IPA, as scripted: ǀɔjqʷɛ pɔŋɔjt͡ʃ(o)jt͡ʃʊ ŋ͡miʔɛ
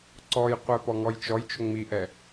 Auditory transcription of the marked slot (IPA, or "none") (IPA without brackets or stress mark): ɔ